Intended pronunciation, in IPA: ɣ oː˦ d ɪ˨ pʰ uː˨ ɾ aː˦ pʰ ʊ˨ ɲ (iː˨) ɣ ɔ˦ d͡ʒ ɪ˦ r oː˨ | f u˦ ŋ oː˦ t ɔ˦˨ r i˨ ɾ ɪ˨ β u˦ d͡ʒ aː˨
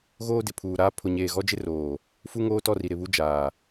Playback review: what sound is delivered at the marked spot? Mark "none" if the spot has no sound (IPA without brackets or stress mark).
eː˨